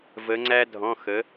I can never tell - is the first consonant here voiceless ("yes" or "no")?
no